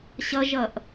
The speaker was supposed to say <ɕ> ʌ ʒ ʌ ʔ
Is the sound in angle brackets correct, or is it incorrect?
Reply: correct